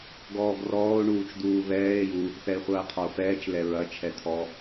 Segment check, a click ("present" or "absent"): absent